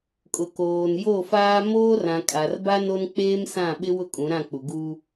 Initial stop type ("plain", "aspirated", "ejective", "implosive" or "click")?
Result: ejective